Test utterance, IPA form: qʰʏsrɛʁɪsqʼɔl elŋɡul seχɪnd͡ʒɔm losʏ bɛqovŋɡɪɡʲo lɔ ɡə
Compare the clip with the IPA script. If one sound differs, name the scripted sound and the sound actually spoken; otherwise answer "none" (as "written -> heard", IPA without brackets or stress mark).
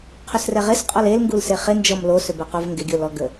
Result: none